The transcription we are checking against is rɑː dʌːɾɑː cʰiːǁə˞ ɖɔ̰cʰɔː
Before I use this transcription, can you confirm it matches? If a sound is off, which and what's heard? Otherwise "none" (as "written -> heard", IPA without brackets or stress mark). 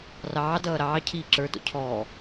ɖ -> d